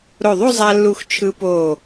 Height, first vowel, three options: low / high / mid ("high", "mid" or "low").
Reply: mid